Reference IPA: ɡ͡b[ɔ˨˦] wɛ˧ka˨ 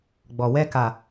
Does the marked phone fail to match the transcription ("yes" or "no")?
yes